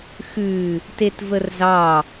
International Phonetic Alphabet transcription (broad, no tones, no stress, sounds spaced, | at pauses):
x ʉ | t e t v ə r z ɑ